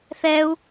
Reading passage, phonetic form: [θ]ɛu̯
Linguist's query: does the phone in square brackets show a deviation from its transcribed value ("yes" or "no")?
no